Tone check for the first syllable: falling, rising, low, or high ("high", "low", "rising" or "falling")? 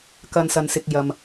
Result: low